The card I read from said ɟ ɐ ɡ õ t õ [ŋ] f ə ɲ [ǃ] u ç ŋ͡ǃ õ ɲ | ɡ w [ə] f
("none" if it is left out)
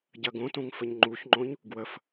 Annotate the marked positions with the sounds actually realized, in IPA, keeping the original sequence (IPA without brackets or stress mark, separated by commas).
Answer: ŋ, ŋ͡ǃ, ə